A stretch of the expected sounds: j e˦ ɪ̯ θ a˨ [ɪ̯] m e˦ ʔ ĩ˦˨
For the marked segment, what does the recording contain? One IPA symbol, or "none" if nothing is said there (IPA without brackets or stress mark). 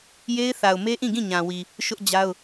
ʊ̯